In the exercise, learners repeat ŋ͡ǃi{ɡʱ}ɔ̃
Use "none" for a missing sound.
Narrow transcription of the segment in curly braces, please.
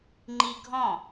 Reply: ɡʱ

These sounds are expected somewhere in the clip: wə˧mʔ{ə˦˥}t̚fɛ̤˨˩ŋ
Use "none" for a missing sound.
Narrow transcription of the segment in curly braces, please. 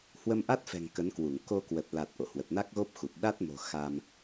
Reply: a˦˥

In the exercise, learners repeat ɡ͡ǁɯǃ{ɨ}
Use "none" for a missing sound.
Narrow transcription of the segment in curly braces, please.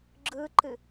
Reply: ɨ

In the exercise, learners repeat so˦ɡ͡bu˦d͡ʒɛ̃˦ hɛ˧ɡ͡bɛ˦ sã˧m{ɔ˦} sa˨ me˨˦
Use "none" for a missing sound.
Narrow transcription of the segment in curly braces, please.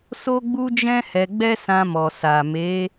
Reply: ɔ˨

